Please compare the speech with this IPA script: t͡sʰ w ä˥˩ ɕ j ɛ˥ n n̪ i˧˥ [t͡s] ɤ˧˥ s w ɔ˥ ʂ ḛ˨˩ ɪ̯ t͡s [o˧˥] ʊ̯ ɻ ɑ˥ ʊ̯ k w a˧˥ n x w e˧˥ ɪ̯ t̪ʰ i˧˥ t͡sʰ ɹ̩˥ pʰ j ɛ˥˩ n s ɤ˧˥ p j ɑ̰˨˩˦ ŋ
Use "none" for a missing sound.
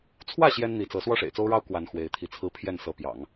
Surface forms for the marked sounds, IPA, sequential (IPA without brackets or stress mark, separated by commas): t͡s, o˥